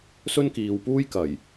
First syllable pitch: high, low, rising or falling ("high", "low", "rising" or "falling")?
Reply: high